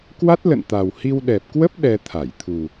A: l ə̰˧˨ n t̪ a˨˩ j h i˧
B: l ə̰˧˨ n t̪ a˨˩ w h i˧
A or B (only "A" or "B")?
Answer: B